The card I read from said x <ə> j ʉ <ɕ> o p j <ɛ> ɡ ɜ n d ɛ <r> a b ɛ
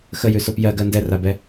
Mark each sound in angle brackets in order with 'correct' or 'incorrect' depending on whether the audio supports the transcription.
correct, incorrect, incorrect, correct

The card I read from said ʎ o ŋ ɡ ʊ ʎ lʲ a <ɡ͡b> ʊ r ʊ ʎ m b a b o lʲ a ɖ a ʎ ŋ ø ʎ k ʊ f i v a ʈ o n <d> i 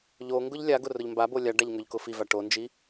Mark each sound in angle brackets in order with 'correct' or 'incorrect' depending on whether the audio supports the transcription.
incorrect, incorrect

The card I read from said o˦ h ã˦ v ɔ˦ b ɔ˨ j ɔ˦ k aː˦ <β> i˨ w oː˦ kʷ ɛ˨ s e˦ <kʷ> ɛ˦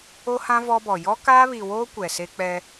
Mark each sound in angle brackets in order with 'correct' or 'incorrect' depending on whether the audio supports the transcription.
correct, incorrect

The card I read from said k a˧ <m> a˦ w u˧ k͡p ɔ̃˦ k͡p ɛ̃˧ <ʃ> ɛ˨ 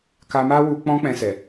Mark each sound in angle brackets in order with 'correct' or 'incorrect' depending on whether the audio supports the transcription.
correct, incorrect

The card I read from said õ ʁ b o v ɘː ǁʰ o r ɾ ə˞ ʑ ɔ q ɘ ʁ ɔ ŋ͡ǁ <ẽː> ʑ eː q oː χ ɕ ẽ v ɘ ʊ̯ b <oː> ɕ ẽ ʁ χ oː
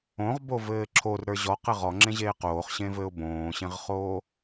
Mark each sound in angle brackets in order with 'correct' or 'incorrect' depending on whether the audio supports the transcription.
incorrect, incorrect

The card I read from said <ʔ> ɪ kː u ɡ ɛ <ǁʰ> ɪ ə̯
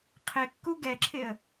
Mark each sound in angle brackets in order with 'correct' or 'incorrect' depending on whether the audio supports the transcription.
incorrect, correct

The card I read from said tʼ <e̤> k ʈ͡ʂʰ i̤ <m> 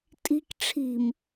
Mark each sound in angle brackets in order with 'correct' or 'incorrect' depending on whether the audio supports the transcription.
incorrect, correct

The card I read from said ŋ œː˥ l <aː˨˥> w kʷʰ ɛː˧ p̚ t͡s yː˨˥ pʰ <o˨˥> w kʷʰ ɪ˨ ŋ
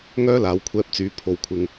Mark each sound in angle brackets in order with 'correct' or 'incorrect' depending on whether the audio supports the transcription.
correct, incorrect

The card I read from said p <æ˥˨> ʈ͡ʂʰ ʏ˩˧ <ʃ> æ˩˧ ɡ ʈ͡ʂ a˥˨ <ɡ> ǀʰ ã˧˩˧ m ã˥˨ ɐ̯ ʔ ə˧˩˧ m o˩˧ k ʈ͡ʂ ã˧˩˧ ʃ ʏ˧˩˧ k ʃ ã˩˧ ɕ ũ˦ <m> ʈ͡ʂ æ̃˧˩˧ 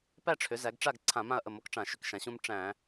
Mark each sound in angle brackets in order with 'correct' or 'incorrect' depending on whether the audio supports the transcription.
correct, incorrect, correct, correct

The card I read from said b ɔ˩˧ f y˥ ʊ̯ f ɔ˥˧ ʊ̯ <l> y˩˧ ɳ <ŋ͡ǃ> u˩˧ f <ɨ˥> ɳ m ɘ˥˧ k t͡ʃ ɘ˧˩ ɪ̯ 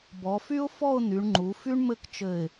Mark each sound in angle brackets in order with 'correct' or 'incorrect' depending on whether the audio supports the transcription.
incorrect, correct, incorrect

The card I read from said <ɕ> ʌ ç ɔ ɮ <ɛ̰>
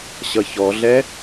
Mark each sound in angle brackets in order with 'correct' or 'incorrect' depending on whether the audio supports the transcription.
correct, incorrect

